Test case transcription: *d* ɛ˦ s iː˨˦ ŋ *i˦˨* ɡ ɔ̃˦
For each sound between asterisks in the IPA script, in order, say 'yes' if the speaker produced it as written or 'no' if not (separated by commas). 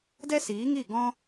yes, yes